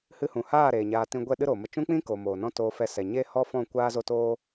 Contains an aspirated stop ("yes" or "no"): no